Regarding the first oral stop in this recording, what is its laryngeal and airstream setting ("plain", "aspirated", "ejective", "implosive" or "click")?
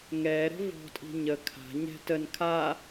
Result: ejective